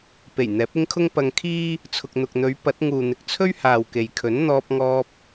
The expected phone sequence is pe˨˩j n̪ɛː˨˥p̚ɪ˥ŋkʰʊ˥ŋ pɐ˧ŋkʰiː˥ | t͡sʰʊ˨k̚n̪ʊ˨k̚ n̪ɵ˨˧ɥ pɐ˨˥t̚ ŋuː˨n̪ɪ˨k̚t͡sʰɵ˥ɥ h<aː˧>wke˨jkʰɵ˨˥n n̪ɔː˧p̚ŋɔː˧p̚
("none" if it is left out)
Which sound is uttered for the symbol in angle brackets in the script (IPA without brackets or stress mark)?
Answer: aː˨